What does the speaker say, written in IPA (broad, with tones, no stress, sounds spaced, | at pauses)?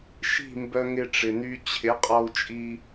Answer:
ʃ i̤˥˩ m b œ˧ ŋ ɪ˧ ʈ͡ʂ ɪ˩ n y˧ t͡ɕʰ ɪ˩˥ qʼ ɔ˧ u̯ t͡ʃʼ i˧